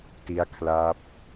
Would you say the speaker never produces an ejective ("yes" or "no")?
yes